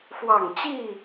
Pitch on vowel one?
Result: falling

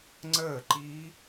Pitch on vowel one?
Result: falling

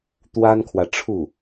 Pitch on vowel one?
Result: high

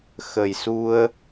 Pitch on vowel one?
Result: low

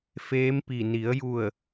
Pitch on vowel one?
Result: rising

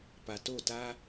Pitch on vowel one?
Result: low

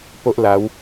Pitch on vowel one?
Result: high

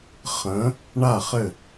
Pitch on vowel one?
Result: rising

